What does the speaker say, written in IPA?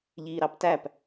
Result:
ʎ iː ɾ ɑ p t æ p

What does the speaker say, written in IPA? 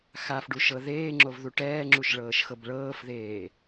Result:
x a f ɖ u ʃ ɤ ð eː ŋ͡ǁ o v ð u ʈ ɛː ŋ͡ǁ u ʃ ɭ ɤː ʃ x ɤ b ɭ ɤː f ð eː

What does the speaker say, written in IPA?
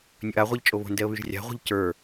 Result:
nʲ ɵ ʔ a ʁʷ i ʎ t͡ʃʼ o β o̤ n d ɛ ə̯ β y ʒ rʲ a̤ ʁʷ i̤ ʎ c ə˞

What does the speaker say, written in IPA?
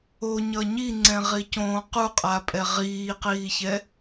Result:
o ɲ ʌ ɲ i ŋ͡ǀ ɛ̃ ʁ i c õː q u qʼ a pʼ ɛ ʁ iː q iː ç ɛ

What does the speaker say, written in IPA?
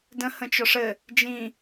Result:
d ə̃ h ə̃ t͡ʃ ɔ ʂ ɘ | d͡ʒ ĩ

